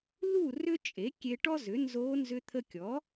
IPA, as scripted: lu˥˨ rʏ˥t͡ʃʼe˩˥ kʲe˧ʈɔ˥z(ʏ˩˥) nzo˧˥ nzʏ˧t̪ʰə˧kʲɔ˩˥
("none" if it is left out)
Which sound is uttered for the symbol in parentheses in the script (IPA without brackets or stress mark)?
ʏ˩˥